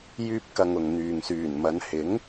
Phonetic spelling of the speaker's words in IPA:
j yː˥ p̚ k ɐ˧ ŋ ʊ˨ ŋ n̪ yː˨ ŋ s yː˨˩ n m ɐ˨˧ n h ɪ˨˥ ŋ

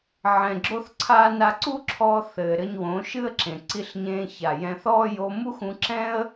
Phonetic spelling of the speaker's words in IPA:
ʕ ɛ̃˨ ɡ͡ǁ o˧ θ ǀʰ aː˧ n a˧ ǀ u˦ ǁʰ ɔː˧ θ ɘː˨ ɾ ɘ˧ ɲ w õ˨˦ ʃ ɨ˦ ə̯ ǁ ẽ˨ ǀ i˧ ɬ ɲ ẽː˧ ç a˨ j ɛ̃˧ θ ɔː˦ j o˧ m u˦ x ũ˧ ǁ ɛ̃˦ ə̯

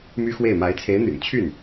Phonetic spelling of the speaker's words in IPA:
m y˥ x w e˥˩ ɪ̯ m a˧˥ ɪ̯ t͡sʰ e˧˥ ɪ̯ n̪ y̰˨˩ n t͡ɕʰ y˥˩ n

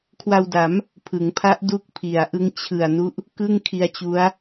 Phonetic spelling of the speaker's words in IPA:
kʰ w a˧ w d a˩˦ m | pʰ ɯ˩˦ ŋ pʰ a˦˥ ʔ d u˦˥ k̚ pʰ i˩˦ a̯ ʔ ɯ˦˥ ŋ t͡ɕʰ ɯ˨˩ a̯ n u˦˥ ʔ | k ɯ˥˩ ŋ kʰ i˧ a̯ t͡ɕ u˦˥ a̯

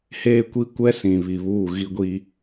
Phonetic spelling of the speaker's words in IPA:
h eː˦ kʷ i˦ kʷ ɛ˦ s ĩ˨ β i˨ β uː˦˨ ɣ i˦ ɡʷ i˦

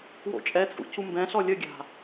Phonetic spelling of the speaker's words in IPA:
w o̰ t͡ʃʼ ɛ t͡sʼ ṵ c u m b ɛ̃ ɬ ɔ lʲ ə ɡʲ a̤

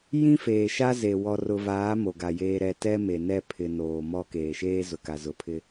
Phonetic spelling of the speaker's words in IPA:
j ĩ˦ f eː˨ ʃ a˦ z e˨ w ɔ˨ r ʊ˨ v aː˨˦ m o˨ ɡ a˨ j eː˦ ɾ ɛ˦˨ t ɛ˦ m e˨ n ɛ˦˨ pʰ ɪ˨ n oː˨ m ɔ˦ k eː˨ ʃ eː˦ z ʊ˨ k a˨ z ʊ˨ pʰ ɪ˦

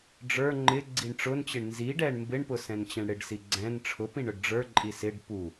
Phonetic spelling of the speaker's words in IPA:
ɖ͡ʐ ə˞ ŋ͡ǃ ɪ ɡ͡ǀ i ɳ ʈ͡ʂ ʊ n t͡ɕ ɪ ɳ n z i ɖ ɛ ɳ m b ɪ ɳ p ʊ s ɛ̃ n t͡ɕ ɛ̃ ɳ ɽ ɪ ɖ s i ɡ͡ǀ ɛ̃ n ʈ͡ʂʰ ʊ p ĩ ɳ ʊ ɖ ɖ͡ʐ ə˞ ǃʼ i s ɪ ɖ p u

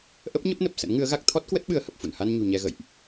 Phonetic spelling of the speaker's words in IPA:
ʔ ə˦˥ p̚ ɲ ə˦˥ p̚ n ə˨˩ p̚ s ə̰˧˥ n ŋ ɨ˨˦ ə̯ ɣ a˦˥ k̚ t̪ʰ ɔ˦˥ t̚ k w ə˦˥ t̚ ɓ ɨ˨˦ ə̯ h ə˨˩ p̚ f ṵ˧˨ n h a˧ n ɲ ṳ˨˩ ɲ ɛ˧ ɣ ə̰˧˨ j ʔ

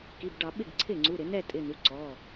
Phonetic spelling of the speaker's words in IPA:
k i˩˧˩ b ɖ ɑ˧˩˧ ɓ ɪ˧˩ ɡ ǀʰ ɪ˧˩ ŋ͡ǀ u˩˧˩ ɾ ɪ˧˩˧ n̪ ɛ˥˨ tʼ ɪ˩˧˩ n̪ u˩˧˩ ǀ ɔː˩˧˩

